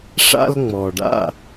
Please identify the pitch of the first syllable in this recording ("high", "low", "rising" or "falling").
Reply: high